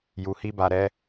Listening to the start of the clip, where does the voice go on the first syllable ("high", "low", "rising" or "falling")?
low